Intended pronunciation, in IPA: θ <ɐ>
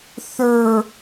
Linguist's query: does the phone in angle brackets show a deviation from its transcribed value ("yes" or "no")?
yes